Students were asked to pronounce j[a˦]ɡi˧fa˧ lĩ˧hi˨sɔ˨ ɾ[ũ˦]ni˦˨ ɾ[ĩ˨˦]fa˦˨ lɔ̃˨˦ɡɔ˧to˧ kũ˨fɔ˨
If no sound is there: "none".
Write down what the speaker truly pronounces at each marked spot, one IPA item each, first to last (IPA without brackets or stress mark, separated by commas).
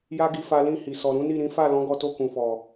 a˦, ũ˨˦, ĩ˨˦